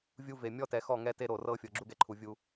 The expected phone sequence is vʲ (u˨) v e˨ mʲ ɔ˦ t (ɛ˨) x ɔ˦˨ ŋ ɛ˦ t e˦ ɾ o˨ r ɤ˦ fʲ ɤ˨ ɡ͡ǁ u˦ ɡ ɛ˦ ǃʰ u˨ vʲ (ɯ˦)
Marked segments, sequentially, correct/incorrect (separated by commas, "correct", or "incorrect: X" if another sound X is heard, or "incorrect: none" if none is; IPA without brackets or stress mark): incorrect: u˦, correct, incorrect: u˦